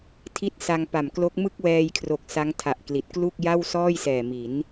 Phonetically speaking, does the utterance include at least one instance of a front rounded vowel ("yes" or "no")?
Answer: no